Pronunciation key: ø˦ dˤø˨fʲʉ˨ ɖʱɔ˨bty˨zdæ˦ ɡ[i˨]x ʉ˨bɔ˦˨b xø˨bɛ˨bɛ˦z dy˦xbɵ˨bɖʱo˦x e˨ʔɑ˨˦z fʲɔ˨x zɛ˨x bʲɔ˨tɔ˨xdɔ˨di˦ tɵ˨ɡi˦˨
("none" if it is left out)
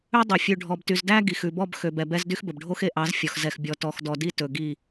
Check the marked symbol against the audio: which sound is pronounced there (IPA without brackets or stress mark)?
i˨